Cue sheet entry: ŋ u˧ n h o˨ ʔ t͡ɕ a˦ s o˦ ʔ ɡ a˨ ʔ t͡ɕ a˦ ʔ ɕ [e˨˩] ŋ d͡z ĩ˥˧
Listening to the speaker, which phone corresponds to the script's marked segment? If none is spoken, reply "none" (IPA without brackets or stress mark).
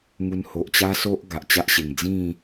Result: e˨˩